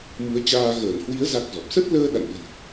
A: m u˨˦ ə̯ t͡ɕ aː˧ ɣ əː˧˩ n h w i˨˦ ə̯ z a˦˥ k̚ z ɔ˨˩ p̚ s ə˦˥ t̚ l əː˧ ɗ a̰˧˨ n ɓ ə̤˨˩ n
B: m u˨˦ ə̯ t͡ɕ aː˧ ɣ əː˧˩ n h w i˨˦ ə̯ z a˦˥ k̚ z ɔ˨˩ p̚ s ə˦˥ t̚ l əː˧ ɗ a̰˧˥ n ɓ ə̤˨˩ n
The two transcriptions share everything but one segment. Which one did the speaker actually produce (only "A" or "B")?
A